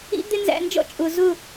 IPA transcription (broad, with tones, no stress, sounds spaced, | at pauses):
ḭ˦ d̪ ɪ˦ n z æ̰˧ n d͡ʒ ɔ̰˦ t͡ʃʼ ʊ˨ z ʊ˦˨